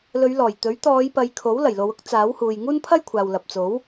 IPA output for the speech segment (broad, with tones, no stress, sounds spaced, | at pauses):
l ɵ˨˧ ɥ l ɔː˨˩ j t̪ ɵ˨˥ ɥ t̪ ɔː˨˧ j p ɐ˨ j kʰ o˨˥ w l ɐ˨˩ j l o˨˧ w ʊ˥ k̚ t͡s aː˨˥ w h uː˨ j ŋ uː˥ n pʰ ɐ˥ j kʷʰ aː˨ w l ɐ˨ p̚ t͡s o˨˥ w